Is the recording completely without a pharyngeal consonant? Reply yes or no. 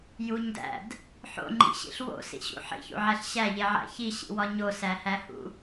no